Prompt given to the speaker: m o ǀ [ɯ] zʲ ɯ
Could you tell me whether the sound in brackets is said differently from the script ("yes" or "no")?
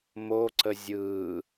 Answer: yes